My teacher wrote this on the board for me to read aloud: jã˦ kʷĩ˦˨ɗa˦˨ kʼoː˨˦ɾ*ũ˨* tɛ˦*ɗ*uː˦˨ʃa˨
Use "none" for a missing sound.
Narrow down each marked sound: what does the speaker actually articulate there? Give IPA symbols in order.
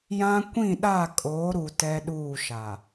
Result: u˨, ɗ

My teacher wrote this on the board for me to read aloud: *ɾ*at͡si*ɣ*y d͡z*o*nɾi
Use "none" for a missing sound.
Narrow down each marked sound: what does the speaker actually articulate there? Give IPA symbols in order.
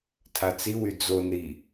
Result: tʰ, w, o

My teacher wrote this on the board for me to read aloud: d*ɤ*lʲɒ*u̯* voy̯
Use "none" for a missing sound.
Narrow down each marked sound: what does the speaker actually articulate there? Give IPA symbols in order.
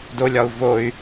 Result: o, u̯

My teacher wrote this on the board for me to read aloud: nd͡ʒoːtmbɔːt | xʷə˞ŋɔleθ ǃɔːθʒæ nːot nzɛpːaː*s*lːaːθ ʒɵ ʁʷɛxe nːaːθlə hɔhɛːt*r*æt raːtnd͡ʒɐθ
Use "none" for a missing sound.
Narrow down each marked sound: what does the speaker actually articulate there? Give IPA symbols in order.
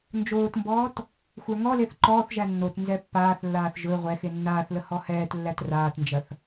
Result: θ, lː

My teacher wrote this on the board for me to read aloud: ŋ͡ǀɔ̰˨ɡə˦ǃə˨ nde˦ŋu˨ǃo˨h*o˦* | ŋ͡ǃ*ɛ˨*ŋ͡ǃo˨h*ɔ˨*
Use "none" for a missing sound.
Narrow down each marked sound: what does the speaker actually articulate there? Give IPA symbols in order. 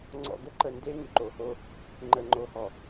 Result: o˦, ə˨, ɔ˨

